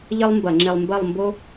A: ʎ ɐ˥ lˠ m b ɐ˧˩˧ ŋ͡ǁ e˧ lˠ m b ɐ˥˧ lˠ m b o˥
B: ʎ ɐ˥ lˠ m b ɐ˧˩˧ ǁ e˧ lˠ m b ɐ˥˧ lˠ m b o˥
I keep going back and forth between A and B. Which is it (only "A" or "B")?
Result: A